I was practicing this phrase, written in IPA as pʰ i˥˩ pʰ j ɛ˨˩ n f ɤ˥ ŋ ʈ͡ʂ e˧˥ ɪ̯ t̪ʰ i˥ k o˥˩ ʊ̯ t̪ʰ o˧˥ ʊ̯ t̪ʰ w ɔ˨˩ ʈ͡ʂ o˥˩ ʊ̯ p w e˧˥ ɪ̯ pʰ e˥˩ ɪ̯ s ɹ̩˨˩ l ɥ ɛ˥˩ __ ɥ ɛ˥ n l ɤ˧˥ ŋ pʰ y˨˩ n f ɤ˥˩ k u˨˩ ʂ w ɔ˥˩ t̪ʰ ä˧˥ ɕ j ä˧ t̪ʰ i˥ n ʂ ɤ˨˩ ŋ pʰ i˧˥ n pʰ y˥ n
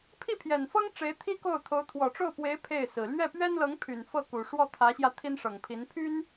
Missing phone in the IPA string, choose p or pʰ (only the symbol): p